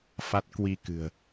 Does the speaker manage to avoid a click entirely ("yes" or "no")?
yes